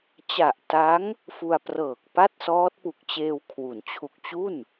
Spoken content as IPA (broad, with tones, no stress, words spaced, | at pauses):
t͡ɕa˨˩ʔta˦˥ŋ | fu˧a̯prɤː˨˩k̚pa˥˩t̚ sɔː˦˥t̚pu˨˩k̚t͡ɕeː˧w kʰwu˩˦nt͡ɕʰu˨˩k̚t͡ɕu˥˩n